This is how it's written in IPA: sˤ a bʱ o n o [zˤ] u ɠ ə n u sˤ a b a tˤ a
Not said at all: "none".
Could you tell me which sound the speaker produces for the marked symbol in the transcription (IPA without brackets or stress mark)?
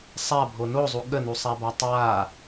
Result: zˤ